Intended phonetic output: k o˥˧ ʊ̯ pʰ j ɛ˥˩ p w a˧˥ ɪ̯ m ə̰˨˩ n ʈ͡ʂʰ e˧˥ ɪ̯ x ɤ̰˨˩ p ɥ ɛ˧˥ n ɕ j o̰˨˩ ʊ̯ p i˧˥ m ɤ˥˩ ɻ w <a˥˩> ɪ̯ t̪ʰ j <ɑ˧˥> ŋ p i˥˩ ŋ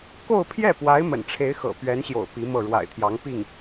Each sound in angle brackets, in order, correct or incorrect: incorrect, correct

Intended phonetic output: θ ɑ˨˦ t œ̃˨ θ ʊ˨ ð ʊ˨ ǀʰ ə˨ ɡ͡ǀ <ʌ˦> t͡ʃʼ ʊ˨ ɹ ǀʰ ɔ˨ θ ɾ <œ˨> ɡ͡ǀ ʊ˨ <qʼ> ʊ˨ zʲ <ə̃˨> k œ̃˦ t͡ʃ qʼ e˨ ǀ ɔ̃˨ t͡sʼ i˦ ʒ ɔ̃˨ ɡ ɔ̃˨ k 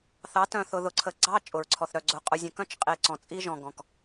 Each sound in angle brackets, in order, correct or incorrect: incorrect, correct, correct, correct

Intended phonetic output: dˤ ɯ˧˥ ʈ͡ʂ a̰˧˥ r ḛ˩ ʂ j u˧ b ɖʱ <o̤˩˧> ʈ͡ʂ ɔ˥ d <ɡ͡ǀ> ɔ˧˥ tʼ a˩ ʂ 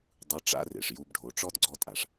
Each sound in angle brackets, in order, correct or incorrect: incorrect, correct

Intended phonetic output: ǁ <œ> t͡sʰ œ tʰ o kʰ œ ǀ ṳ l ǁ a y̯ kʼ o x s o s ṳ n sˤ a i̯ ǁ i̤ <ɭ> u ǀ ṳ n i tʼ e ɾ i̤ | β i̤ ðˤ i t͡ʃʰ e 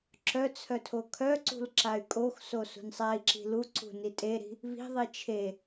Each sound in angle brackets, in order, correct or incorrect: correct, incorrect

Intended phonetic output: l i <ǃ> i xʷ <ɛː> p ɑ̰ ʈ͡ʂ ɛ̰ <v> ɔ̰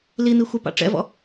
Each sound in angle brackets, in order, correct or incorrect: incorrect, incorrect, correct

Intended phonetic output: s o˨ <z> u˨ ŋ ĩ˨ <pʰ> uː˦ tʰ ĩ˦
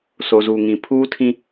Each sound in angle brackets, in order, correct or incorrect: correct, correct

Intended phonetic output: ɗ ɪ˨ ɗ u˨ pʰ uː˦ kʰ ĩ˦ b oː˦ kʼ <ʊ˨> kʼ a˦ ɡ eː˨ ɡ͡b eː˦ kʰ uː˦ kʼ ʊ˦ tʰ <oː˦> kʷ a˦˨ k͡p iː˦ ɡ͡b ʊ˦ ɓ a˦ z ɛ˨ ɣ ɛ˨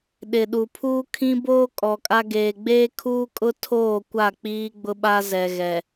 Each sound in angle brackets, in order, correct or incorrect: incorrect, incorrect

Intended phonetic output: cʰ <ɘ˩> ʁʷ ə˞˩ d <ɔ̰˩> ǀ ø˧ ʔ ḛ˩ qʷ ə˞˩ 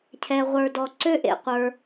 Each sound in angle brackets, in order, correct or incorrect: incorrect, incorrect

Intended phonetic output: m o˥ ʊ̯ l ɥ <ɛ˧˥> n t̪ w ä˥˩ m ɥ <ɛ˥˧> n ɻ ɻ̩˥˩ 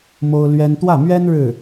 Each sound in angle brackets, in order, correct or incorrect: incorrect, incorrect

